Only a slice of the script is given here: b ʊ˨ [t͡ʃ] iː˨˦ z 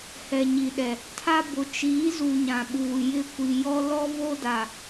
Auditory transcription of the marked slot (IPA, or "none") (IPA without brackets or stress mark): t͡ʃ